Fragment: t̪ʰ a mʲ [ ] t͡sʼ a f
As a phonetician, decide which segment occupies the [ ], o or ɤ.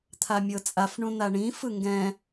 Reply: ɤ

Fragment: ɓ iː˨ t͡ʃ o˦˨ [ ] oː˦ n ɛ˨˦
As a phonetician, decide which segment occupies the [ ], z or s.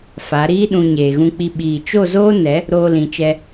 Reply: z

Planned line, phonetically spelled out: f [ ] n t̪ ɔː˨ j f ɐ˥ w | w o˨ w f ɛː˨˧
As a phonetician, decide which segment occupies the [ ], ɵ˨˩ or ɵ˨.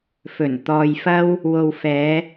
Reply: ɵ˨˩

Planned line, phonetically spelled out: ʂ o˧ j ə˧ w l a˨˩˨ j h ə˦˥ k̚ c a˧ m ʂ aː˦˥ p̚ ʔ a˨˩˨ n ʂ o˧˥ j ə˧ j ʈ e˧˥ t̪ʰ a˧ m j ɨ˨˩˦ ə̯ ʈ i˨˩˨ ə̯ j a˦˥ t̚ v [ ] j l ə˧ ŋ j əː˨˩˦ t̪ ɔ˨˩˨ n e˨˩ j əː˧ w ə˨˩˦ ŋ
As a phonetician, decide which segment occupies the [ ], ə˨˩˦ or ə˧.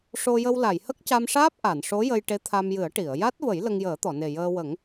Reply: ə˨˩˦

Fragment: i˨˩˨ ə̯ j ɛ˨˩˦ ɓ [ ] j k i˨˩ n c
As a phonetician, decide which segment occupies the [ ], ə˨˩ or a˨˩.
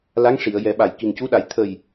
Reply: a˨˩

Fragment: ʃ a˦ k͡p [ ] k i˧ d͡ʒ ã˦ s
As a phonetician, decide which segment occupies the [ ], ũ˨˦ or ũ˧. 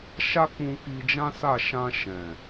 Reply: ũ˧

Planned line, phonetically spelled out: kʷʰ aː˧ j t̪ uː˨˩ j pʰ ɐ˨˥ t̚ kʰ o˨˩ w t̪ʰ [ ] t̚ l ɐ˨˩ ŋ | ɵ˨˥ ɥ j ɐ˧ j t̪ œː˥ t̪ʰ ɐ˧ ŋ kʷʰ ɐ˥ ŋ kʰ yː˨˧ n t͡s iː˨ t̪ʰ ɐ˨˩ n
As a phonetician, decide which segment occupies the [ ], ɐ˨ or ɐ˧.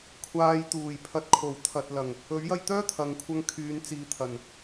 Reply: ɐ˨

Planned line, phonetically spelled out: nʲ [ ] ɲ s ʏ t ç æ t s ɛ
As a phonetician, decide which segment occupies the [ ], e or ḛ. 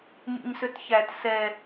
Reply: ḛ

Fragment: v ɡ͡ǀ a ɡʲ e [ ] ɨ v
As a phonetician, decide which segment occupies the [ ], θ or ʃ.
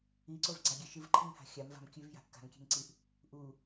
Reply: ʃ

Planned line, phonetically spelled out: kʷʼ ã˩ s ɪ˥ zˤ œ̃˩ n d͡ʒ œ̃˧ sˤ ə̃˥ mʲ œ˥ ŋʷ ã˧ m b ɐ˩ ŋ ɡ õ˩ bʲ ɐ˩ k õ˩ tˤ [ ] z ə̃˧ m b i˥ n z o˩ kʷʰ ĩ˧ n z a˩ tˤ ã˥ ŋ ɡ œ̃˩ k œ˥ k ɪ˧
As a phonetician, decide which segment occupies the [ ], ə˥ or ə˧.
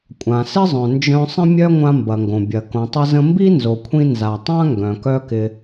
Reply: ə˧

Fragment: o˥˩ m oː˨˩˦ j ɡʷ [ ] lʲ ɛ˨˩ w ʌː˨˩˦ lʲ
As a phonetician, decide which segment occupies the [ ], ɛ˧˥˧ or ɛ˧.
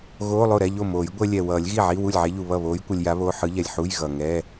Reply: ɛ˧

